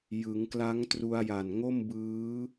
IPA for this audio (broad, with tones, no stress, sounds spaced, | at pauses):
j ɯ˩˦ ŋ k l a˦˥ ŋ t r u˧ a̯ j a˨˩ n ŋ o˥˩ m b ɯː˦˥